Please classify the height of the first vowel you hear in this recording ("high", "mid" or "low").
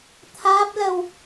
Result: low